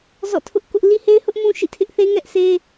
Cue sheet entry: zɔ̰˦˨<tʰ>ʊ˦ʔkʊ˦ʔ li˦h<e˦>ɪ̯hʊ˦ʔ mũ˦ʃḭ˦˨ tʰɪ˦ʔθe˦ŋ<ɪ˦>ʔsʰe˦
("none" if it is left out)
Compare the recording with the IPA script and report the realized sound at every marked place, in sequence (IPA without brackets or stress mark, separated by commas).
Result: tʰ, e˦, ɛ˦